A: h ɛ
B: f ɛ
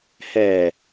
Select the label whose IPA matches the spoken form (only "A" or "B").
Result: A